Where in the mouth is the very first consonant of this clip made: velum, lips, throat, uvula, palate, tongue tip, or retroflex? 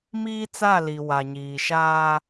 lips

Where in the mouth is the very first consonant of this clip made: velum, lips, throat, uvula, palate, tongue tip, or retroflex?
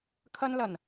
velum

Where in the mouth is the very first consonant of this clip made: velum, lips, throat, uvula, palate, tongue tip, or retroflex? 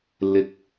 tongue tip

